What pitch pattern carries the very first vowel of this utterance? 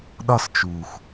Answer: high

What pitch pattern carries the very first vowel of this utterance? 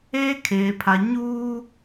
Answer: high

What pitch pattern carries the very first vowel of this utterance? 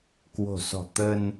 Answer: low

